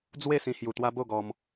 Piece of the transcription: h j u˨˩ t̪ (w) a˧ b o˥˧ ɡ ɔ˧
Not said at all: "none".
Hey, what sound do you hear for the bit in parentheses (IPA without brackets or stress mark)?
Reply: w